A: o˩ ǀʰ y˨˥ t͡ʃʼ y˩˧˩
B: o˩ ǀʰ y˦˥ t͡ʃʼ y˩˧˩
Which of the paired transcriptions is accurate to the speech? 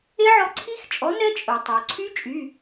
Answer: B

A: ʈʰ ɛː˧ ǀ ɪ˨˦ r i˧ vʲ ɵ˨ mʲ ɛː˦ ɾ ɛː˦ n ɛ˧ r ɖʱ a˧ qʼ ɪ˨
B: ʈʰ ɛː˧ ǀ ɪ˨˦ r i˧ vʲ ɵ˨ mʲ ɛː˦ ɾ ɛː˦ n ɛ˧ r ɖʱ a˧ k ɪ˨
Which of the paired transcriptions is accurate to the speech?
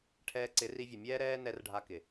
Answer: B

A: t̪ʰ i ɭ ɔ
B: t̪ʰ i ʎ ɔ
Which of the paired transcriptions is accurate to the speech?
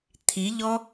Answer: B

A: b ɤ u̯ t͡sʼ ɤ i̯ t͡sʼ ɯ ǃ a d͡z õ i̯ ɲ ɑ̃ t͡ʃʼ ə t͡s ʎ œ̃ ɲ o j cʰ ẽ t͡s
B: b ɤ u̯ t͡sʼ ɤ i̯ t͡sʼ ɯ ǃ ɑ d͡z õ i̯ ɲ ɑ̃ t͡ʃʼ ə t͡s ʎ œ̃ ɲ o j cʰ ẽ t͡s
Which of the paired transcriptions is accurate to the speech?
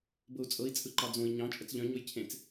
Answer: B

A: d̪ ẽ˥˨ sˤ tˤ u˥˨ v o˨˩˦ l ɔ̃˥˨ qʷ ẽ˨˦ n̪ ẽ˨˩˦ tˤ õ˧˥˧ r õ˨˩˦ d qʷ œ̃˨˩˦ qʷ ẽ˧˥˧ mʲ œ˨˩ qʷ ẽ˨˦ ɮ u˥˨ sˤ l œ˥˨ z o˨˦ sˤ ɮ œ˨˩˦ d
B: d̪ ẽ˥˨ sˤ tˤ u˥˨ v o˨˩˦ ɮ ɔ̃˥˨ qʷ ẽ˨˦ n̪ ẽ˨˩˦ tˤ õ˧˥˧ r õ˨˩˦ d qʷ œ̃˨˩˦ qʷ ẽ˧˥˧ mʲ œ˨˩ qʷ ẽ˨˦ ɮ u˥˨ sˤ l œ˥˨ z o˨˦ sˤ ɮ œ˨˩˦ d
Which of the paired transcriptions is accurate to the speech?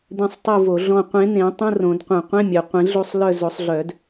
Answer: B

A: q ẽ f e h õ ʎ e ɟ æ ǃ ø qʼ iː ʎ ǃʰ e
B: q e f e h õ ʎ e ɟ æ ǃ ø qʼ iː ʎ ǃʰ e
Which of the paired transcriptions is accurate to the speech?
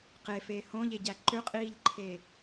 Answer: B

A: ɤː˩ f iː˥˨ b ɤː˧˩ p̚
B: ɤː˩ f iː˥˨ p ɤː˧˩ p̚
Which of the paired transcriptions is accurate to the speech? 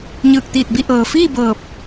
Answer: A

